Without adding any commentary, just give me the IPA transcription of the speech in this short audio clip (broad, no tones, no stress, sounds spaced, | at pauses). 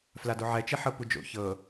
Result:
f l a d o ʕ ɛ t͡ʃ e ħ ɤ p u d͡ʒ o̰ ç ɤ